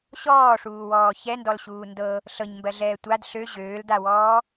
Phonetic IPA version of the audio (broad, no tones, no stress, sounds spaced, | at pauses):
ɕ ɔː ʂ uː w ɔː ç ɛ n d ɔ l ɕ uː n d ɤ | ɬ ɤ ɲ m b ɜ ɮ ɛː tʷ a d ɬ ø ʑ øː l d a w ɔː